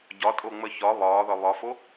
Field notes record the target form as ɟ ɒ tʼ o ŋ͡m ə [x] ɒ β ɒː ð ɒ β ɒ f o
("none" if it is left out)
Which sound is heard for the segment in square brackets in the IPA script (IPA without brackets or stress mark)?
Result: ç